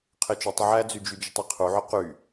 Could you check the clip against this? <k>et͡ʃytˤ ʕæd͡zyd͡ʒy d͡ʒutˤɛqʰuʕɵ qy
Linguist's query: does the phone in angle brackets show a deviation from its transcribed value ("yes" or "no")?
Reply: yes